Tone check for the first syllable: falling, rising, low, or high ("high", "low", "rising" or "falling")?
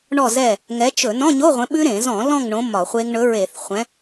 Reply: falling